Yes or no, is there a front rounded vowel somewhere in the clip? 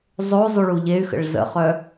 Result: yes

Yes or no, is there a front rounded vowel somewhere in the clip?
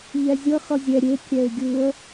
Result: no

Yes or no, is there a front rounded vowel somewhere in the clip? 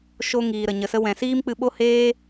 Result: no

